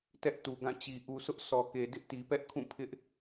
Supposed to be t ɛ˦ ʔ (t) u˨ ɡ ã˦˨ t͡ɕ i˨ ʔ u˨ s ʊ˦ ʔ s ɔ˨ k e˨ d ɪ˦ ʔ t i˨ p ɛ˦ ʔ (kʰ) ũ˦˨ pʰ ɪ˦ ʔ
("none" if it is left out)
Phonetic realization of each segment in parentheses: t, kʰ

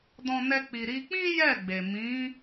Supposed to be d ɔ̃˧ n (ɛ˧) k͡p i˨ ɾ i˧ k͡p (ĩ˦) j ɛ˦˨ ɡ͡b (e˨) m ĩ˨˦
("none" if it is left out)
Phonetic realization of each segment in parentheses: ɛ˧, ĩ˦, e˨

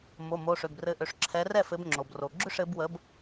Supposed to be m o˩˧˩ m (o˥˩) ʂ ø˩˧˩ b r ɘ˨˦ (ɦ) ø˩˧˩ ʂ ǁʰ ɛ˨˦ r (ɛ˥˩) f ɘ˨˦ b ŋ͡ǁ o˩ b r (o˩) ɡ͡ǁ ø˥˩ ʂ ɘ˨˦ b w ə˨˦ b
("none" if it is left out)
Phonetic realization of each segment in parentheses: o˩˧˩, ʔ, ɛ˥˩, o˩

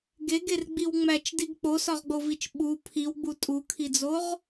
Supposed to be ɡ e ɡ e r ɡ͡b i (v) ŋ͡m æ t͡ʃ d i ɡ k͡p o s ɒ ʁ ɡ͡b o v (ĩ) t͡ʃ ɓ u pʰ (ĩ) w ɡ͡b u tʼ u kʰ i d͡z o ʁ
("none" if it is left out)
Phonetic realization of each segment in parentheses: w, i, i

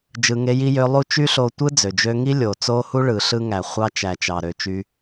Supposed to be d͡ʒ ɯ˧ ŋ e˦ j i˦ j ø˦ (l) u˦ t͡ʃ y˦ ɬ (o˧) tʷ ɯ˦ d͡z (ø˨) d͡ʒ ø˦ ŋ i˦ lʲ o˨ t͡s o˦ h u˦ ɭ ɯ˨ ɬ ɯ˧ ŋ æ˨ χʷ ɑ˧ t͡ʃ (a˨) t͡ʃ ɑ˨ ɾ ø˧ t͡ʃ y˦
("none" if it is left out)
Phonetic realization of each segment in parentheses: lˠ, o˧, ø˨, æ˨

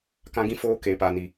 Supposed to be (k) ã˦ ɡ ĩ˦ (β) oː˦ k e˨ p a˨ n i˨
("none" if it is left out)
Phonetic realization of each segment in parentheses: k, f

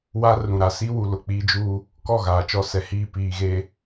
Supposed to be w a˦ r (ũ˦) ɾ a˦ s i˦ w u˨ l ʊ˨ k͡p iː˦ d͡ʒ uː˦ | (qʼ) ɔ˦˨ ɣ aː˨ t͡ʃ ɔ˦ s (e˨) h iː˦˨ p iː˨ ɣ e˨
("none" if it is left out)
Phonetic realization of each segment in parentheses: ũ˨, k, ɛ˨

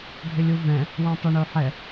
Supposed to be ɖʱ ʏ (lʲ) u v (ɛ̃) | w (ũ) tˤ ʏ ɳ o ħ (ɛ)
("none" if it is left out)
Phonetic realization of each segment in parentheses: lʲ, ɛ̃, õ, ɛ

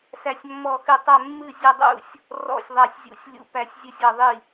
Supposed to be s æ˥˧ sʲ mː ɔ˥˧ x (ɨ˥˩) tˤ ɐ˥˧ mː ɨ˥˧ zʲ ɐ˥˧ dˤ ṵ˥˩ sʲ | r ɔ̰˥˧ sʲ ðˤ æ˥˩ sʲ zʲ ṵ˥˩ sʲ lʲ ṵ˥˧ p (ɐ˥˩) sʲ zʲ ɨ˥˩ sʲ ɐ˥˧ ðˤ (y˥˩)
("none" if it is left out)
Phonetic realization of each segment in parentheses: ɨ˥˩, æ˥˩, i˥˩

